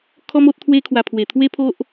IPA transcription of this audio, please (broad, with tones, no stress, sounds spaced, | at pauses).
kʰ ɔ˦ m o˦ t̚ t̪ʰ w e˧ kʰ w a˨˩ pʰ w e˨˩ t̪ʰ w e˦ pʰ o˦ ʔ